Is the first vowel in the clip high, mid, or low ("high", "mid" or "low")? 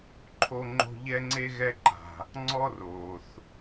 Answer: mid